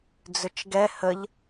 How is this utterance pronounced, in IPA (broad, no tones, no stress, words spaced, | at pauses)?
d͡zʏt͡ʃɡɛ həʎ